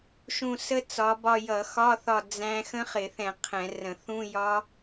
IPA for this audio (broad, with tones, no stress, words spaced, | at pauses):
ʃũ˦˨sə˦˥ t͡sɒ˨˦bɒ˦˨ jʌ˧˩˧xɒ˧˥˧θɒ˦˨ d͡zæ̃˦˥ xə̃˦˥χɪ˧˩˧θɛ̃˧˩˧ qʰɛ̃˧˩˧rə̃˧˩˧ θũ˧˥˧jɒ˦˥